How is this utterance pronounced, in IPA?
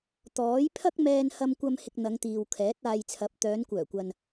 t̪ ɔː˨˥ j pʰ ɐ˥ k̚ m ɛː˧ n h ɐ˧ m kʷ ɐ˧ m h ɪ˧ k̚ n̪ ɐ˨˧ ŋ t̪ iː˨ w kʰ ɛː˨˥ t̚ aː˧ j t͡sʰ ɐ˨˥ p̚ t̪ œː˨˧ n kʷ œː˨˩ kʷ ɐ˨ n

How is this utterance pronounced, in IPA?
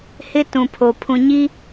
h ɪ˦ t ũ˨ pʰ o˨ pʰ ũ˨ ɲ i˦

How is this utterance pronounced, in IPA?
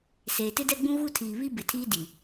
s eː˨ t ɪ˦ d ɛ˦ ɡ͡b ũ˦ ɣ u˦ tʰ iː˨ β i˦ b ɪ˨ tʰ iː˦ d i˨

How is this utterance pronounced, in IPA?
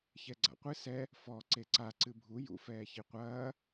ç ɛ ɡ͡ǀ a̰ qʷ ɨ s ɛ | f ɔ ǀ e ǀ a ǀ ɨ bʱ u j ṵ f ɛː ç i qʷ ɐː

